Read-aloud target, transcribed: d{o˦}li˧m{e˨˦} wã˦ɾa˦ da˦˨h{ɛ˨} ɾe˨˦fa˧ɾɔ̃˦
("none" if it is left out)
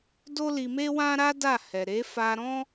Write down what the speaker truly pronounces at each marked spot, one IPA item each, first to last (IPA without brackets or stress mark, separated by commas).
o˦, e˦, ɛ˨